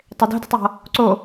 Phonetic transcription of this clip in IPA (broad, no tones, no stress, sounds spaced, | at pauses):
tˤ e d o̤ d e̤ tˤ j ɔ̤ | ǀ o